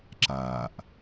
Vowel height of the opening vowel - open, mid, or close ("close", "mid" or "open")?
open